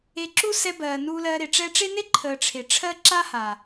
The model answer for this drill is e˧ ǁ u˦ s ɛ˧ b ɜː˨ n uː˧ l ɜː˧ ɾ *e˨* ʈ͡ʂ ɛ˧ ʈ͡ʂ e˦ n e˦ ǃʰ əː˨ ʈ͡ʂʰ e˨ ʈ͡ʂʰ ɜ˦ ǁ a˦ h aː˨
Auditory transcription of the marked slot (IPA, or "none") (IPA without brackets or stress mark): e˨